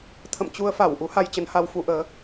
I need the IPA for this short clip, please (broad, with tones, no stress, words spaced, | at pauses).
t̪ʰə̰˧˨mt͡ɕu˧ə̯fa˧˩w ʔu˨˦ ha˧jt͡ɕə˧nha˧w fu˧ʔəː˨˦